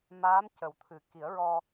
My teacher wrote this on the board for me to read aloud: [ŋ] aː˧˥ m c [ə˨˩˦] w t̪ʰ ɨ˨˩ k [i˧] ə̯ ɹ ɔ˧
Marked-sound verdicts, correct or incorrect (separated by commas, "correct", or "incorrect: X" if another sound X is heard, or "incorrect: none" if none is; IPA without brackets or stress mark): incorrect: m, correct, incorrect: i˨˩˦